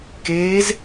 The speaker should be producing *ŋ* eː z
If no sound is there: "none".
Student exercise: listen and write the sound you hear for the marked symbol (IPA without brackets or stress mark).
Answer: k